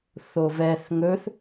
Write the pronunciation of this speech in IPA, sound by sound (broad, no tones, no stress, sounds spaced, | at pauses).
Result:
θ o v ɛ θ ŋ ɵ θ